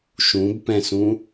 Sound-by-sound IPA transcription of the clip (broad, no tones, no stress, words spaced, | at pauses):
ʃũbpɛ̃sũ